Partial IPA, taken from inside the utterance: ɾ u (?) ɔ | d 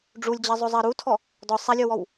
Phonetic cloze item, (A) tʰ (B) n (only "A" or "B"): A